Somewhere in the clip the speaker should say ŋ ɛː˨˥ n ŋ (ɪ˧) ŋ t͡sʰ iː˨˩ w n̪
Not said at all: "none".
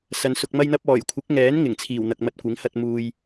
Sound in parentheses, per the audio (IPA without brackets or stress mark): ɪ˨˩